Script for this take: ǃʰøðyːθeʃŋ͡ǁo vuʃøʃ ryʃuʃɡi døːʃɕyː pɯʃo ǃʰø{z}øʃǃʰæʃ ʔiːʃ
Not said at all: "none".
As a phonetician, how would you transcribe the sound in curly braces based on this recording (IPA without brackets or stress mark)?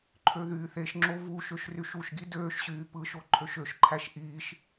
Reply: ʃ